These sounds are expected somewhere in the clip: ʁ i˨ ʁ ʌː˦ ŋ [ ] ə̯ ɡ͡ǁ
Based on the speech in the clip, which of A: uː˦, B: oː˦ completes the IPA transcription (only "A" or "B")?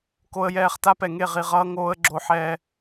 B